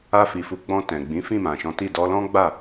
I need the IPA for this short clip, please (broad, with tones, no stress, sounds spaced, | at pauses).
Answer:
a˧ f i˨ f u˨˦ ɡ͡b ɔ̃˧ t ɛ̃˨ ɡ͡b ĩ˨˦ f ĩ˦˨ m ã˨ ʃ ɔ̃˨˦ t i˦˨ d ɔ˧ l ɔ̃˦ ɡ͡b a˦˨